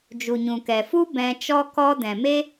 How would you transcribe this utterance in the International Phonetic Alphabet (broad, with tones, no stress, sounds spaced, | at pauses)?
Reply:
d͡ʒ u˨ ɲ ũ˨ k ɛ˨ f u˦ b ɛ̃˧ t͡ʃ ɔ˦ k ɔ˦ d ɛ̃˨ m e˦